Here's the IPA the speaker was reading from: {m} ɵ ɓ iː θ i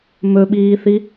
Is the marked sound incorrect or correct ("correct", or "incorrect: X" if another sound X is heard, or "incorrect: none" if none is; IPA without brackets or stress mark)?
correct